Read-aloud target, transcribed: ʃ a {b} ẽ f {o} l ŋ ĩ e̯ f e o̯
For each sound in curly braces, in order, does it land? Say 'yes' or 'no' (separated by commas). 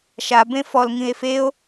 yes, no